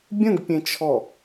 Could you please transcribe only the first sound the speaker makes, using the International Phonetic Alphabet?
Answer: bʲ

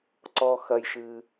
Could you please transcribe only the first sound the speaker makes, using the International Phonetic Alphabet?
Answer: ǀ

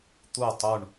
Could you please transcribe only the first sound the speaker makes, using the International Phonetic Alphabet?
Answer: t̪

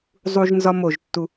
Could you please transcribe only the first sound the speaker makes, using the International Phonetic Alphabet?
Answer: zˤ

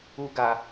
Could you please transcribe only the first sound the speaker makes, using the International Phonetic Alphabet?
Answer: u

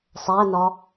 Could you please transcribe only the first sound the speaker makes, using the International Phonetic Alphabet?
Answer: sˤ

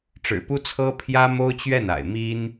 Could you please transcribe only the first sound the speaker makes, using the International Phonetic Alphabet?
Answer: ʈ͡ʂ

